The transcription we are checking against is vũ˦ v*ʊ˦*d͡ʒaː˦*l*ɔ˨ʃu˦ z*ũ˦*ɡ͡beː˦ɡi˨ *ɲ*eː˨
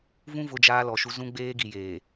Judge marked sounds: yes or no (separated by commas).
yes, yes, yes, no